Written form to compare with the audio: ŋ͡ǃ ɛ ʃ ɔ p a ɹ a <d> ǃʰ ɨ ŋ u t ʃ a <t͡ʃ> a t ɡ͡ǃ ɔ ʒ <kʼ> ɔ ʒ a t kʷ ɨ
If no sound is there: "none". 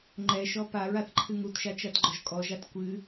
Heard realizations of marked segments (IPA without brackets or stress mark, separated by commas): θ, t͡ʃ, kʼ